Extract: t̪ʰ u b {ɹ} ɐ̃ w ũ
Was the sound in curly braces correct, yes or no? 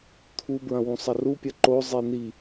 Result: yes